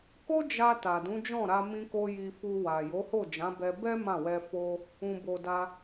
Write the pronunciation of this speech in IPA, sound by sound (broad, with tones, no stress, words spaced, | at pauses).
ko˦d͡ʒa˧ ta˨dũ˨˦d͡ʒɔ̃˦˨ɾa˧ mĩ˧ko˧ ji˧fu˧wa˨ jo˨˦ho˦˨d͡ʒã˨˦bɛ˧ bɛ˦ mã˦˨wɛ˧ fo˦ | ũ˨bo˨da˧